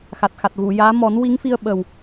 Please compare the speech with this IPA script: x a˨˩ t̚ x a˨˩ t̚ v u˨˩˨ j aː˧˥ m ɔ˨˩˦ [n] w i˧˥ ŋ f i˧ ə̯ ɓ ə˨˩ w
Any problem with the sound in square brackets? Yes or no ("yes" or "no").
no